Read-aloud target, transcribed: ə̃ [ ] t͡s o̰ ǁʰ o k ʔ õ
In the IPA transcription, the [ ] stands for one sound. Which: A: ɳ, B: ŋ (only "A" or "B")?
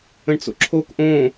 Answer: A